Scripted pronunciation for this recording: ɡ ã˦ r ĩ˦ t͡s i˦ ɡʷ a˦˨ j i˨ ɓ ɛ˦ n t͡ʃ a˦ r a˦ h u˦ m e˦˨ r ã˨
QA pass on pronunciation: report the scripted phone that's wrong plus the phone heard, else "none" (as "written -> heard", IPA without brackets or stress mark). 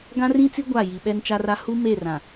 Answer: none